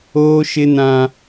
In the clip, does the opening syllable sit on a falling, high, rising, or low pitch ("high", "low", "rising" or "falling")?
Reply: high